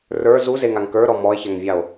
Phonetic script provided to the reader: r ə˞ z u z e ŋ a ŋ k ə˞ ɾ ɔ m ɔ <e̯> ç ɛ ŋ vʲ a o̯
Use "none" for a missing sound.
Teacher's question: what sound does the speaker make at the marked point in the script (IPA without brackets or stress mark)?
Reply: e̯